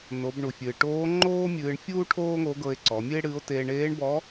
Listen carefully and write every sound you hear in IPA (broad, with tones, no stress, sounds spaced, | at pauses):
n o˩˧ b ɳ u˩ fʲ ɨː˩ ʈ oː˧˥ ŋ͡ǃ oː˥ mʲ ɨː˧ ɳ fʲ uː˥ ʈʰ oː˥ ŋ o˧˥ ɡ ɤ˧ e̯ ǀ ɔ˩˧ mʲ ɨ˥ e̯ ɽ ɨː˧˥ o̯ t eː˧ ɳ eː˧˥ ɳ b ɔ˧˥